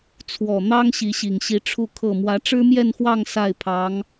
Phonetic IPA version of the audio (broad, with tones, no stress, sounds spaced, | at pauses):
t͡sʰ w ɔ˨˩ n̪ ɑ˥ ŋ ɕ i˧˥ ɕ i˨˩ ŋ ɕ i˧˥ ʈ͡ʂʰ u˥˧ kʰ ɤ˥˩ m w ä˧˥ ʈ͡ʂ ɻ̩˥ m j ɛ˥˧ n x w ɑ˥˧ ŋ s a˥˩ ɪ̯ pʰ ɑ˧˥ ŋ